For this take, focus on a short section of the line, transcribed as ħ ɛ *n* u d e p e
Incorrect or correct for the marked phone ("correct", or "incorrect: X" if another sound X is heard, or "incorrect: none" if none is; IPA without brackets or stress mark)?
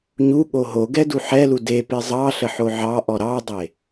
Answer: incorrect: l